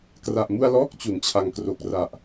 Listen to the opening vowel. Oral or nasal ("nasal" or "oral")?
oral